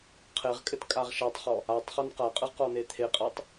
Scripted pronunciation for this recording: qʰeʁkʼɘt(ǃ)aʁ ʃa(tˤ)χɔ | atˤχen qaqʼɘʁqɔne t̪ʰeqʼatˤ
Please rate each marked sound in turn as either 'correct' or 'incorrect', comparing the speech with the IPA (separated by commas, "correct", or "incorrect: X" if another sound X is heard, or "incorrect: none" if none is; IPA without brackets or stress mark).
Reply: incorrect: kʼ, correct